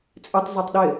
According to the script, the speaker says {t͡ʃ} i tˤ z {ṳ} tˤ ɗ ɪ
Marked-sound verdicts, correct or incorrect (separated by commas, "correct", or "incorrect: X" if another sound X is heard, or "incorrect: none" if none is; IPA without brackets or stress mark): incorrect: t͡sʼ, incorrect: u